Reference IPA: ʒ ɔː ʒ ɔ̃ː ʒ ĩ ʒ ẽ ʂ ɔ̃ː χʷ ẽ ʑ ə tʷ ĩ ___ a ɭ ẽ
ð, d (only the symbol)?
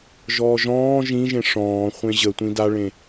d